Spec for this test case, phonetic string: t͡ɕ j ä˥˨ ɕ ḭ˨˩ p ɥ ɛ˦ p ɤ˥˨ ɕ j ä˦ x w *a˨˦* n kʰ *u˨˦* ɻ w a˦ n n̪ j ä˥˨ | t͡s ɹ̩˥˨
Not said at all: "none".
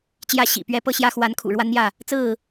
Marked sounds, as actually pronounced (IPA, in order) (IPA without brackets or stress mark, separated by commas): a˨˦, ṵ˨˩